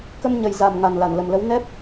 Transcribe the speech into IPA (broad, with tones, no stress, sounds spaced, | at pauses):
k ə˧ m ɲ ə˨˩ j z a˨˩ m ŋ a˨˩ n l a˧˩ n l ə˨˩ m l ə˨˦ w n ɛ˦˥ p̚